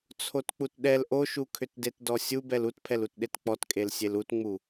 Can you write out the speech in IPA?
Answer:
t͡sʰ o t k͡p u t ɗ ɛ l ʔ o ʃ u kʰ ʏ t d e t d ɔ sʲ u b ɛ l u t pʰ ɛ l u t ɗ e t k͡p ɔ t kʼ e l sʲ e l u t ŋ͡m u

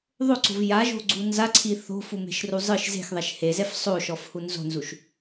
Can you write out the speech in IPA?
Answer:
ðˤ o ǀ o̤ v j a ʒ o̤ ɡ͡ǀ u n z a ǀʰ i θ o̤ f u m e̤ ʃ r u zˤ ɯ ʃ z e̤ x ðˤ ɛ ʃ h e z ɛ f sˤ o ʃ ɔ f h u n z o̤ n z u ʃ

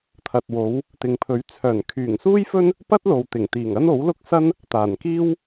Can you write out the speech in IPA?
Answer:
t̪ʰ ɐ˨ t̚ w o˨˧ w | t̪ ɪ˨ ŋ pʰ ɵ˨˥ ɥ t͡sʰ œː˨˩ n kʰ yː˨˩ ŋ s uː˥ j f ɵ˥ n | p ɐ˥ t̚ l o˨ w t̪ ɪ˨˩ ŋ t̪ iː˨˩ ŋ ɐ˥ n o˨˥ w l ʊ˥ k̚ s ɐ˥ n | t̪ aː˨˩ n k iː˥ w

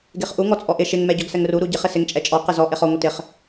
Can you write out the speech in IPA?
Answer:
ɡ e χ ʔ u ŋ ɔ t͡sʼ ɔ ʔ ɪ ʃ ɪ ŋ m ɛ ɟ ɔ ɡ s ɛ ŋ r u ɾ u ɟ ɪ χ ɪ s ɪ ŋ t͡ʃʼ ɛ t͡ʃʼ ɔ q ɪ z ɔ ʔ e χ ɔ ŋʷ ɪ t ɪ χ

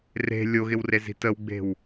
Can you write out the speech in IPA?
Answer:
r e̤ lʲ o ɣ ɪ w r e z i̤ t ə w ɡ͡b e̤ w

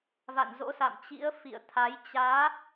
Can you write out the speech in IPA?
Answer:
v a̰˧˨ n z o̰˧˥ s a̰˧˨ m t͡ɕ ḭ˧˥ ə̯ f ḭ˧˨ ə̯ t̪ʰ a˨˦ j t͡ɕ aː˨˦

